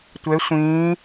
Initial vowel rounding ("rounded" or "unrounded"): unrounded